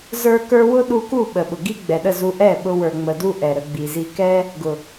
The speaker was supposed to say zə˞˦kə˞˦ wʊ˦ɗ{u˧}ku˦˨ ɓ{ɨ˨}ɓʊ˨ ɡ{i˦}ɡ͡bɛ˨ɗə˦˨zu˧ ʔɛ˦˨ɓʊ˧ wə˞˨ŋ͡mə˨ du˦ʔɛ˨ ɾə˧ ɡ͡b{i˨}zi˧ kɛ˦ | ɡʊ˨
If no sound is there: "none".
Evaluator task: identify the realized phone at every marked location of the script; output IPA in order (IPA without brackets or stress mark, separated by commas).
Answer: u˧, ə˨, i˦, i˨